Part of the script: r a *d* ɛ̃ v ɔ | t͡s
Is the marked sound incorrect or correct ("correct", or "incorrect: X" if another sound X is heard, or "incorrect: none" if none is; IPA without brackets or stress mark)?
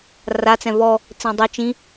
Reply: incorrect: t͡s